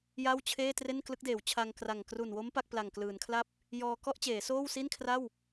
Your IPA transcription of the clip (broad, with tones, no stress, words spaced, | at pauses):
ja˥˩wt͡ɕʰeː˥˩ tre˥˩nklɯ˦˥k̚deː˩˦w t͡ɕʰa˧ŋ kra˨˩ŋ kru˨˩nwo˦˥m pa˥˩k̚pla˨˩ŋklɯː˩˦n kʰla˥˩p̚ | jɔː˧ kɔ˥˩ʔ t͡ɕeː˩˦soː˥˩wsi˥˩nkʰra˥˩w